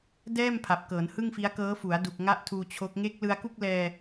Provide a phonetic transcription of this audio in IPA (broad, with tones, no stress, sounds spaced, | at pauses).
d ɛː˥˩ m pʰ a˨˩ p̚ k ɤː˩˦ n h ɯ˥˩ ŋ f i˦˥ a̯ k ɤː˦˥ f u˩˦ a̯ d u˨˩ k̚ ŋ a˥˩ ʔ tʰ uː˧ t͡ɕʰ o˦˥ k̚ ŋ e˦˥ k̚ l ɯ˧ a̯ k u˥˩ k̚ l ɛː˧